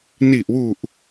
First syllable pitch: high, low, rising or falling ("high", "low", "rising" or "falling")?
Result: low